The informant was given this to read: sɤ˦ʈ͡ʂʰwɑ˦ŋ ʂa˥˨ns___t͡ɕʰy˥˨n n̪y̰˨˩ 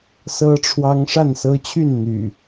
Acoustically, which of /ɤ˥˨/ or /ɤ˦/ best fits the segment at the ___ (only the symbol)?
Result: ɤ˦